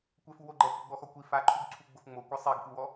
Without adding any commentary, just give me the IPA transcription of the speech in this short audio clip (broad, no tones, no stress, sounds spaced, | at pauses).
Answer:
kʷ ɛ f u w o ɡ͡ǃ ɛ k i ɡ͡b ɔ x ɔ kʷ i f a ǃʰ u ɡ ǀʰ u ɡ͡b ʊ f ŋ͡m o kʷ ɛ sˤ i ɡ k u w ɔ